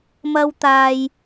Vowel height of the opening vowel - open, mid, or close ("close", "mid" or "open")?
open